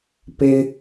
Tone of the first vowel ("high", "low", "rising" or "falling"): high